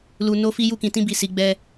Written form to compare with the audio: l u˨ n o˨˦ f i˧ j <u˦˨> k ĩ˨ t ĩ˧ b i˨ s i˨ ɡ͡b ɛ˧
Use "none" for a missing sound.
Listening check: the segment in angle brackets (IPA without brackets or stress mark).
u˧